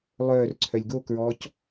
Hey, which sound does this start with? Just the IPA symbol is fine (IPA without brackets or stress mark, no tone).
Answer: lˠ